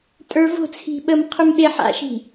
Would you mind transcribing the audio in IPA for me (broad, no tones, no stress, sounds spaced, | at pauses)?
tʼ ə˞ v o̤ t͡sʰ i̤ ɓ ə m qʰ ʏ m ɓ e ħ a̰ ʃ i̤